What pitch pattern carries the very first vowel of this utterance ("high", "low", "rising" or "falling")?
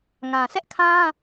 low